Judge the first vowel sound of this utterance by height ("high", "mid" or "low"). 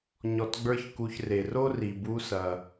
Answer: mid